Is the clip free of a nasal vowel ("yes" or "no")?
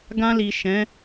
no